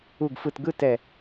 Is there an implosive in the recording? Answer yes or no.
no